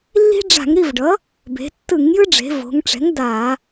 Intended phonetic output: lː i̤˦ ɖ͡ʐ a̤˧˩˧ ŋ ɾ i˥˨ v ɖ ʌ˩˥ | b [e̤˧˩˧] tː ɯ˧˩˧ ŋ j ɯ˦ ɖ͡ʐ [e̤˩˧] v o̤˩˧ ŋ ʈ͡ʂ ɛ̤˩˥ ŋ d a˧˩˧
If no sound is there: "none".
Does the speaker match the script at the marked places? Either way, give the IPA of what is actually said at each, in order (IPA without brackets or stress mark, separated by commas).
e̤˩˧, e̤˩˧